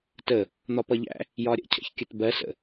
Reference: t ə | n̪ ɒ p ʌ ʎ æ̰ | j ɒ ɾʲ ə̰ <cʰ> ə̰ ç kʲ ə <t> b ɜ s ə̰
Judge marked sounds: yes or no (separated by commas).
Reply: yes, yes